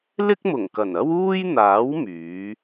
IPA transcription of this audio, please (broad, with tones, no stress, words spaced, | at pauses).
lɪ˥k̚mʊ˨˩ŋkɐ˨˩nɐ˥w uː˥jn̪aː˨˥w myː˨˥